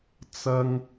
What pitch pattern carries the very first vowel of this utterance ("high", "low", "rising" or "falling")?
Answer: high